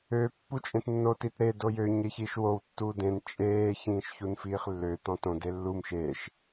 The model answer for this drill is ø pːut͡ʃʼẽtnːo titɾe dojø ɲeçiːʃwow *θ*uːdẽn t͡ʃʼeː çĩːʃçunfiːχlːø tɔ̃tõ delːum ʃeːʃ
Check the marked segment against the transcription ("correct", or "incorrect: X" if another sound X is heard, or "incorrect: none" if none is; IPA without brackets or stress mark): incorrect: tː